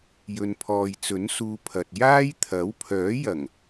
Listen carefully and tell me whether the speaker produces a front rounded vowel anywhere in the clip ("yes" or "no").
yes